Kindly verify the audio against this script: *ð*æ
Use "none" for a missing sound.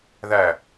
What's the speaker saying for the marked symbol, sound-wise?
ð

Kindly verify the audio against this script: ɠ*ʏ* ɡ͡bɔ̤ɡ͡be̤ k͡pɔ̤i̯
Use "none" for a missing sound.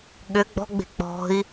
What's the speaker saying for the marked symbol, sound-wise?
ʏ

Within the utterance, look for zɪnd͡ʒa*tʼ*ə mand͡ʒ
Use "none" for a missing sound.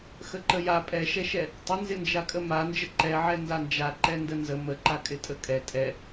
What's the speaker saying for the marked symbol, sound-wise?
kʼ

